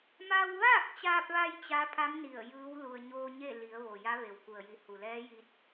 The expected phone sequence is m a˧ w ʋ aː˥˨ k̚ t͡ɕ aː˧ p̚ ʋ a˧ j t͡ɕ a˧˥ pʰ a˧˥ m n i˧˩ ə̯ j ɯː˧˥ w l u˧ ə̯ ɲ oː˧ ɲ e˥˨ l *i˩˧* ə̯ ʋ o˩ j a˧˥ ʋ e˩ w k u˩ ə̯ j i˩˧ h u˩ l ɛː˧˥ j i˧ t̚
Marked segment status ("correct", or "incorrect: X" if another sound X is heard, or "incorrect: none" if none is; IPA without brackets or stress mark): correct